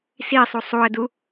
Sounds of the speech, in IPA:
s i sˤ u sˤ u ə̯ d u

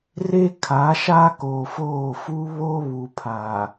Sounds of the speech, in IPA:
r e˦ kʰ a˨˦ ʃ a˦ k oː˨ f oː˦˨ f u˦ β oː˦ β u˨ pʰ a˨

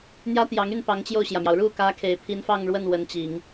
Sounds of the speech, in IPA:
n̪ j ä˥ t̪ j ɑ˧˥ ŋ y˥˩ n p ɑ˧˥ ŋ t͡ɕ j o˥˩ ʊ̯ ɕ j ä˩ m j ɑ˩ ʊ̯ ɻ u˥˩ k ä˥ kʰ e˨˩ ɪ̯ pʰ i˧˥ n f ɑ˥˧ ŋ ɻ w ə˥˩ n w ə˧˥ n t͡ɕ i˨˩˦ ŋ

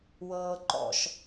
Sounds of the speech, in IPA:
w ɤː ǃ ɔ̰ ʃ

